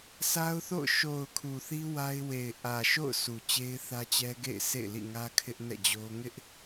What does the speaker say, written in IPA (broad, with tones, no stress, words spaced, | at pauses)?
sa˦ʊ̯ θo̰˦˨ʊ̯ ʃo˨ʊ̯ kʰu˨θi˦ wa˦ɪ̯ we˨ɪ̯ ʔä˨ ʃo̰˦˨ʊ̯ sʰu˨t͡ɕe˦ɪ̯θä˦t͡ɕɛ˦ ɡḛ˦˨ɪ̯ sʰḛ˦˨ɪ̯lḭ˦˨ŋä˦ kʰɪ˦ʔ nɛ̰˦˨d͡ʑo˦ ŋɪ˦ʔ